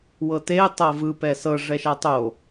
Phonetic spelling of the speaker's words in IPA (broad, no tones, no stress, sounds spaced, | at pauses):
w ɤ t e tˤ ɤ v ɯ p ɛ s ɤ ʐ ɛ ʃ a tˤ o